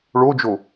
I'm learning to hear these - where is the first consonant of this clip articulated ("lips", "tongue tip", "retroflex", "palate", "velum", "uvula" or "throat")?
retroflex